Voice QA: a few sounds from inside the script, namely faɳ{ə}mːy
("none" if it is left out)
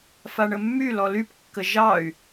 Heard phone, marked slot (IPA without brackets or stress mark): ə